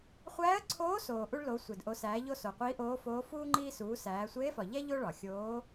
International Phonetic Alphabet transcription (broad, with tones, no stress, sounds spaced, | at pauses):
χʷ æː˧˥ ə̯ ǀʰ oː˧˥ s oː˩ ʔ u˧ ɭ l o˩˧ sʷ e˩ d ʔ o˩˧ s æː˩˧ ʎ o˧ s o˩ qʷ iː˧˥ ʔ oː˧˥ f oː˧˥ f uː˥ ŋ͡ǃ iː˧ s uː˩˧ s æː˩˧ sʷ eː˧˥ f ɒ˩ ʎ æ˥ ʎ o˥ ɭ ɒ˩ xʲ oː˧˥